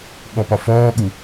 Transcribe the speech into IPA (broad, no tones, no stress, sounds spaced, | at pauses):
ɠ ɔ p ɒ f ɔː ɠ u